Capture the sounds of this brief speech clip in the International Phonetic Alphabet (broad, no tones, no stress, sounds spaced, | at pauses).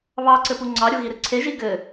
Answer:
β ɑ ǀ ɘ p u ŋ͡ǀ ɑ ɾʲ u ɣ i ɾ ɨ ǀʰ e ʒ i ɡ ɘ